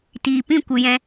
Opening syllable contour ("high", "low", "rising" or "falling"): low